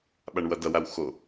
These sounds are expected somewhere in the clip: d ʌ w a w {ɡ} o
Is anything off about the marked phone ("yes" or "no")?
yes